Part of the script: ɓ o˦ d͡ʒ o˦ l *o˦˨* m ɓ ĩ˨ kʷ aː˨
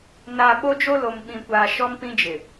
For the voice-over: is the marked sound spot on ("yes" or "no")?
no